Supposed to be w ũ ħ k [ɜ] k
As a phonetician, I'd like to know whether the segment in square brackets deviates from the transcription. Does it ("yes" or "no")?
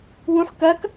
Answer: no